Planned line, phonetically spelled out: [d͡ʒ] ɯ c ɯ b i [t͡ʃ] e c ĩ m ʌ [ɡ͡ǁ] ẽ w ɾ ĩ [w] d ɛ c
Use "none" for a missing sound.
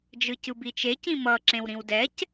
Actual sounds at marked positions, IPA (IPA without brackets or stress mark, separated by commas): d͡ʒ, t͡ʃ, ǁ, w